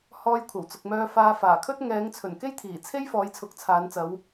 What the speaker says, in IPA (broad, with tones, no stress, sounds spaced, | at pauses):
h ɔː˧ j kʷʰ ɐ˨˩ w t͡s ʊ˨ k̚ m œː˧ f aː˧ f aː˨˩ kʰ ɵ˥ t̚ ŋ ɛː˨˧ ŋ t͡sʰ ɵ˨˩ n k e˥ j t̪ʰ iː˨˩ t͡sʰ e˥ j f ɔː˨˧ j t͡sʰ ʊ˨˥ k̚ t͡sʰ aː˨˧ n t͡s ɐ˨˧ w